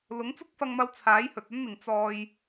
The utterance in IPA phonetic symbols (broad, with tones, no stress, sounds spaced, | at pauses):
l ʊ˨˥ ŋ t͡s ʊ˥ k̚ f ɐ˧ ŋ m ɐ˧ w t͡sʰ aː˨˥ j h ɵ˨ t̚ ɐ˥ n n̪ ɪ˨ ŋ t͡s ɔː˧ j